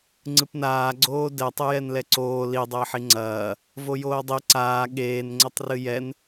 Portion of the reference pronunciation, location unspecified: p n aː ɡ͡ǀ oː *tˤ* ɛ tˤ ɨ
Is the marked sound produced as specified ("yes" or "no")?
no